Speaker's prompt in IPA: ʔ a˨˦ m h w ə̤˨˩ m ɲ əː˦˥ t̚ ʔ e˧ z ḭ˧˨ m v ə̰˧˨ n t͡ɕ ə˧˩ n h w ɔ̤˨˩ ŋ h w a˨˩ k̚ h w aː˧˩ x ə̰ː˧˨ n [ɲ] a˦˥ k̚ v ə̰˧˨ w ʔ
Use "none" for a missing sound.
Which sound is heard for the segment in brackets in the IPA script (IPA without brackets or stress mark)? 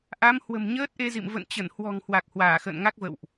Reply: ŋ